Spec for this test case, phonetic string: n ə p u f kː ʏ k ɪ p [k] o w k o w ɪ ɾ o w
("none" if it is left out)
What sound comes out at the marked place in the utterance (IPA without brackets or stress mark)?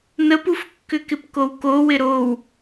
k